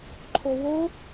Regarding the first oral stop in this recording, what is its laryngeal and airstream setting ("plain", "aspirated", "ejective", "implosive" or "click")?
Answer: click